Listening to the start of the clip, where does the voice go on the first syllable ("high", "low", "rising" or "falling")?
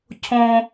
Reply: high